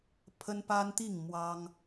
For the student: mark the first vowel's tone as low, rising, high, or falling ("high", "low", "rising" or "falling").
high